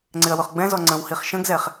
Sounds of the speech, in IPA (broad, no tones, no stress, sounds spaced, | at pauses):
ŋ͡ǀ ɪ ɐ̯ w ʊ χ ɡ͡b ɛ̃ z ɔ ŋ͡ǀ ə̃ w h i χ ʃ ə̃ ɡ z ɛ χ